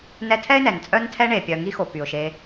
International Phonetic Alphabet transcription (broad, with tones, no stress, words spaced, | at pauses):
nɛ˥ tʰɛ˥ɪ̯nɛ˨n t͡sʼœ˦n tʰɛ˦ ɳe˨ pʲœ˨ ŋi˦xo˨ py˩ʊ̯ʃe˨